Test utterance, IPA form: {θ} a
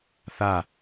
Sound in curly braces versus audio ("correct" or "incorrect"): correct